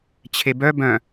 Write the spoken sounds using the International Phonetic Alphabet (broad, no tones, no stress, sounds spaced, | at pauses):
t͡ɕʰ e b œ b œ̃